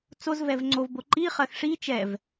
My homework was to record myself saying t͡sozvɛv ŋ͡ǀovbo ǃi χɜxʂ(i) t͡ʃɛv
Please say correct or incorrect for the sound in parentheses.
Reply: correct